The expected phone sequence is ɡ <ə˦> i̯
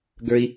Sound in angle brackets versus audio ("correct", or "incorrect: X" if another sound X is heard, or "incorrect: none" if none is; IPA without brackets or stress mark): incorrect: ə˞˦